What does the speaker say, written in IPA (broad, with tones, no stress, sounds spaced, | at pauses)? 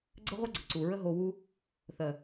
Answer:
ɡ͡ǀ ə˦ ʁʷ ə˦ ɡ͡ǀ ə˨ ǀ u˨ ɹ ə˦ ɦ o˧ w u˦ | θ ɜ˨